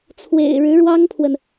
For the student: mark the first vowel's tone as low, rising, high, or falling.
low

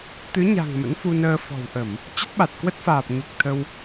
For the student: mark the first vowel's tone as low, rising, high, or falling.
rising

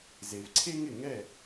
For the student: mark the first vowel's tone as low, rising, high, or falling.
low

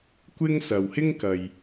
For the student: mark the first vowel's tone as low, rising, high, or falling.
high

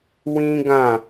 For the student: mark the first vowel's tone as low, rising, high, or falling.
high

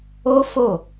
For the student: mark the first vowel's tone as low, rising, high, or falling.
high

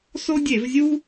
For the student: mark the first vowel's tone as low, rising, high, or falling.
high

